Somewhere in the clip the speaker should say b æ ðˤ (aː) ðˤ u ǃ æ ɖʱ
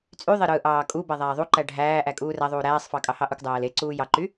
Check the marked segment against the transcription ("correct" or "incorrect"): incorrect